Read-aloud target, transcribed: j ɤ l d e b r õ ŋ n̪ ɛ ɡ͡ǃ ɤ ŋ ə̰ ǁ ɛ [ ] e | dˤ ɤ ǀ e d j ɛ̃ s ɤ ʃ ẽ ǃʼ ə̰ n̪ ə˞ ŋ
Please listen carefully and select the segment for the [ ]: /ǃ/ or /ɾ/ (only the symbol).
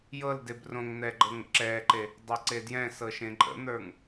ǃ